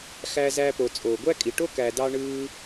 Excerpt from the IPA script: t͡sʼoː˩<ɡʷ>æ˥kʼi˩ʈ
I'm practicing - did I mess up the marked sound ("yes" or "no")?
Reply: no